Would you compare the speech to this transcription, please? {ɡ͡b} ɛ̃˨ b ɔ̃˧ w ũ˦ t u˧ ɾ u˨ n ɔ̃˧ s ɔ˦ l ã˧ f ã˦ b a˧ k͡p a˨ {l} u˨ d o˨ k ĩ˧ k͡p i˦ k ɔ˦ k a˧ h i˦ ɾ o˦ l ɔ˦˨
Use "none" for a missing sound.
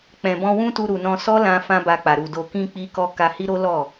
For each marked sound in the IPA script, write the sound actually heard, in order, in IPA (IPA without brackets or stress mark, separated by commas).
k͡p, ɾ